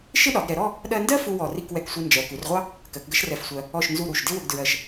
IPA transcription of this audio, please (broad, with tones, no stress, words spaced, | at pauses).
ʃɪ˥ɗɒ˩˧ɡɾɛ˩˧ɾɔ˥˧ | ɗɜ˧ndɜ˥ fu˥wɔ˧˩ri˥˧k wɛ˧˩ksʷi˧nd͡ʒɜ˩˧ ku˩˧rʁʷɑ˥ | kɜ˩˧kɡə˥ʃrɛ˧˩fsʷɜ˧ | ɔ˧˩ʃnzu˧˩ ɾu˧˩ʃ dɪ˥wʊ˧ɡdɹɜ˧˩ʃ